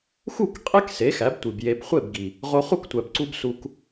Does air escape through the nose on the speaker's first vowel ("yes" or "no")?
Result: no